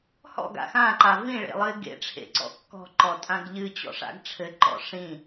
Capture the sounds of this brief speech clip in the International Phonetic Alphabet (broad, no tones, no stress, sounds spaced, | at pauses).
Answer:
h ɔ̰ ɡ a̰ x ã ǃ a v ĩ ɭ ḛ lˠ ɨ ɪ̯ ɡ ḛ ʈ͡ʂʰ ḛ ǀ ɔ̰ kː ɔ̤ ǃ ɔ tʼ ã ɡ ʎ ɨ t͡ɕ ɔ̰ ʂ a̰ ɡ ʈ͡ʂʰ ɘ ǃ ɔ̰ ʂ ĩ